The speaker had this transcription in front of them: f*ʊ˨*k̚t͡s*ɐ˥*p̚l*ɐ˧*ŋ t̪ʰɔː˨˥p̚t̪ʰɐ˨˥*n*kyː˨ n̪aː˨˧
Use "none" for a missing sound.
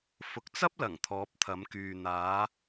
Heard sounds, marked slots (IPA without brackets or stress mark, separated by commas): ʊ˨, ɐ˥, ɐ˨˩, m